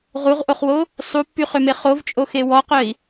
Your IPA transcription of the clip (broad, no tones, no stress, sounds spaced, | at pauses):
ʁ u ʁ ʔ o χ w o | sˤ u pː y χ ø m e χ o v t͡ʃʼ o x e w ɔ q œ i̯